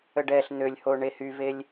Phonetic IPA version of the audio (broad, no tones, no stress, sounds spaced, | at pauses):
ə ɖ ɛ ɬ n̪ ø lʲ h o ɳ e h y v e lʲ